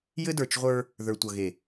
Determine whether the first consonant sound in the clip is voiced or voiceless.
voiced